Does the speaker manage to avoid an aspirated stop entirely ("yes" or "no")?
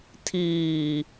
no